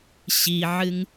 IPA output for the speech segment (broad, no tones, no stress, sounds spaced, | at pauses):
ɕ i ʕ ɨ ŋ